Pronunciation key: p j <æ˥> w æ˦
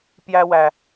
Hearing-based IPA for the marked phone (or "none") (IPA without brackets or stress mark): æ˥